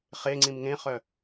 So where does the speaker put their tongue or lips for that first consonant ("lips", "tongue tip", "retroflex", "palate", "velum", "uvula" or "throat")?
uvula